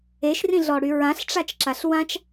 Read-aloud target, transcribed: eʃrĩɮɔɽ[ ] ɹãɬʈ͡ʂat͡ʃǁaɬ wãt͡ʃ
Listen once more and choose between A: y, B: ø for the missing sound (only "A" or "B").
A